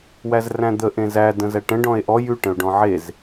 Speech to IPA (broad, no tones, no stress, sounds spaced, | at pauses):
w æ z r æ̃ d̪ ə ʔ ẽ z æ d ə̃ z æ ʈ ə̃ ɖ ɔ̃ e̯ ʔ ɔ j ʉ ʈ ə̃ o̯ ɖ ɔ̃ ʕ e z